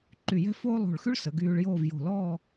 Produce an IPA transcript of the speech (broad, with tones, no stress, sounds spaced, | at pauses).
ǃ y˧˩ j ɛ̤˥ f oː˥ lˠ o̤˧˩ ɭ x y˥ ɭ s ə˩˧ ɡ yː˧ ɭ j oː˥˧ v j o̤˧˩ l ɔː˥˧